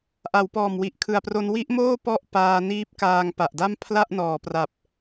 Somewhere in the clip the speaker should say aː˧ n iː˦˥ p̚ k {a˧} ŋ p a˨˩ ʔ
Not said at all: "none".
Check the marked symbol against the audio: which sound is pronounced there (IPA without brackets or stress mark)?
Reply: aː˧